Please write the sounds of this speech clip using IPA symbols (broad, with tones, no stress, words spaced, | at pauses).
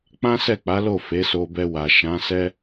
k͡pã˦sɛ˦˨k͡pa˨˦lo˦˨ fe˨˦so˧bɛ˧ wa˨ʃã˨˦sɛ˦